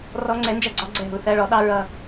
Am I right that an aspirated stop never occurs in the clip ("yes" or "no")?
yes